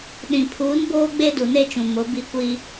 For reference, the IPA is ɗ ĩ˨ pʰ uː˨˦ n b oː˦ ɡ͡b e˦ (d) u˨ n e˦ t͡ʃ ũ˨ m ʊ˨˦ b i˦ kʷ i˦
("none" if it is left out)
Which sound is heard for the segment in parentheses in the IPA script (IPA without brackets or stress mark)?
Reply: d